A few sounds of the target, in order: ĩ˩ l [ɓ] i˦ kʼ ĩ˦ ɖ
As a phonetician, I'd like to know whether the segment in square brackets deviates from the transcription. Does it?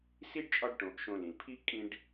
yes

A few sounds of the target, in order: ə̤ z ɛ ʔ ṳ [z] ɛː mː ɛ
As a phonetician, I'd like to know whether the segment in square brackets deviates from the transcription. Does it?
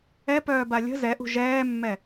yes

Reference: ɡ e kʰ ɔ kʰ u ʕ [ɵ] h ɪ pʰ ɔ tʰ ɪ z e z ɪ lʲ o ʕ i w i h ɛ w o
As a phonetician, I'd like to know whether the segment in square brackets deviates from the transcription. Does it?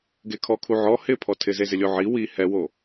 yes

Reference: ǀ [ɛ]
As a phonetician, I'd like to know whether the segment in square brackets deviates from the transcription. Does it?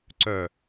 yes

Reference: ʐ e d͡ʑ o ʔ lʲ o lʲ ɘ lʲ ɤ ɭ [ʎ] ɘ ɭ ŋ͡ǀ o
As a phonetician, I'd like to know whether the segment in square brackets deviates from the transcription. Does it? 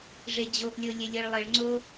yes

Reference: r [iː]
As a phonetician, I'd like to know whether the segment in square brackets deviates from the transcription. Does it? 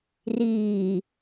no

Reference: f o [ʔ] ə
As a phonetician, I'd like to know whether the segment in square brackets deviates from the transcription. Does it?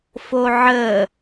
yes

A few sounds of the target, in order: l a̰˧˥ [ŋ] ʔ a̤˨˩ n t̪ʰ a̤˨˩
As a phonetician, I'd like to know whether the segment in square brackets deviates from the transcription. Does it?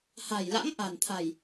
no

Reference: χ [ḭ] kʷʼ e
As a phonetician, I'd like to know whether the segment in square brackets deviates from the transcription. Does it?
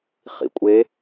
no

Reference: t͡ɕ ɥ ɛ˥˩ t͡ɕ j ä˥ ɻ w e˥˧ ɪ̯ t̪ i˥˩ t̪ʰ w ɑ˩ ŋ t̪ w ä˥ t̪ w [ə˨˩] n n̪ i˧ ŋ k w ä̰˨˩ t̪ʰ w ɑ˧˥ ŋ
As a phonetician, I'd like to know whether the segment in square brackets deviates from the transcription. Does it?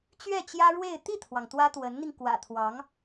yes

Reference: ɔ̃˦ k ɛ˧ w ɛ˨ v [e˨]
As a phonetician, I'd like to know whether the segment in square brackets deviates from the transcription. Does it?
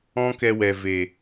no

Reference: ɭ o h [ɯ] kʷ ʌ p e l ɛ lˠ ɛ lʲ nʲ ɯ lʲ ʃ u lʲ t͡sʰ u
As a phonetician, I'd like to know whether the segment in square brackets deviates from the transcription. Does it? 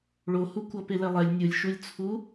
yes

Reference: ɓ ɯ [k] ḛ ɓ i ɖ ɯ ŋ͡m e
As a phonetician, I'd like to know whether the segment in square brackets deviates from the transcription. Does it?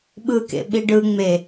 no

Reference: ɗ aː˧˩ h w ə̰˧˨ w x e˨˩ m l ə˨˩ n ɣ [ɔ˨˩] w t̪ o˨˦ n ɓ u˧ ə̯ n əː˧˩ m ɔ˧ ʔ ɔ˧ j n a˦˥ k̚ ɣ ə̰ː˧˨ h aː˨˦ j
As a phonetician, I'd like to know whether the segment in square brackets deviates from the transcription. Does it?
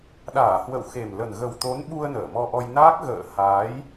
yes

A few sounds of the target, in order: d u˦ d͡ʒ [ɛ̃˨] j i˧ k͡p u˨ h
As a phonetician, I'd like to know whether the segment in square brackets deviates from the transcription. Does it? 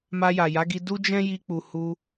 yes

